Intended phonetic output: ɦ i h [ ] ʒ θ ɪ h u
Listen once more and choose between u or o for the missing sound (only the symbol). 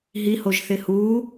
o